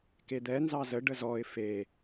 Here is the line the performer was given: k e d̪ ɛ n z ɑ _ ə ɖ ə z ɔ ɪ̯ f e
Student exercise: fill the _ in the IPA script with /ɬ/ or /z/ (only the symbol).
z